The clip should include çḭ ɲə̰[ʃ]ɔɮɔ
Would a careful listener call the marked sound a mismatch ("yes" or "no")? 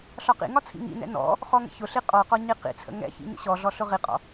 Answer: yes